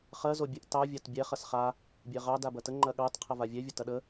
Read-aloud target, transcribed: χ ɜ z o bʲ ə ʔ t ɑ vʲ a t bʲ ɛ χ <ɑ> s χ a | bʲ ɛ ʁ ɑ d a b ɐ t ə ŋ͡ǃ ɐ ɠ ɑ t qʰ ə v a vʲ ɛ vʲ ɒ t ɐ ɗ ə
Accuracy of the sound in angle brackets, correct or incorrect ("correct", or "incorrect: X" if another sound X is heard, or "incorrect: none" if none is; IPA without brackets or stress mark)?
incorrect: ɐ